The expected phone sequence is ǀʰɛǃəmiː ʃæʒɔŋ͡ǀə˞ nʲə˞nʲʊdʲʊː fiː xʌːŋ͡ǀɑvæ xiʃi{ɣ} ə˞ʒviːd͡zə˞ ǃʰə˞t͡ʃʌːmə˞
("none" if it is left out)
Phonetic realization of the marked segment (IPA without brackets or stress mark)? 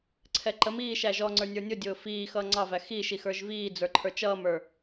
x